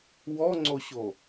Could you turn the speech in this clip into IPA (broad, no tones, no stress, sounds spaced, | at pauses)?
w ɔ ŋ͡ǀ o ɕ o